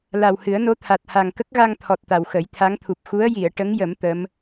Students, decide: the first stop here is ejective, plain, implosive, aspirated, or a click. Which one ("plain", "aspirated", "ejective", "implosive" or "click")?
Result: aspirated